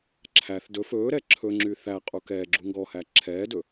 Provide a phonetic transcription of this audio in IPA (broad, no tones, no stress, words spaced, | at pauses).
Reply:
ǁʰæθ dɵ fɵːɾɛ ǁʰɵŋ͡ǁy θæqʼu kɛː ɡ͡ǁuŋɡɔhæ ǁʰɛːdɵ